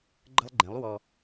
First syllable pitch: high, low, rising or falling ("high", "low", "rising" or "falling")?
high